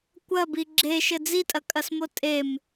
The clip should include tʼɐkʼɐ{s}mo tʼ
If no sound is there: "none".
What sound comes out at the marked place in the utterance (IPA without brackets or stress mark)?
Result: s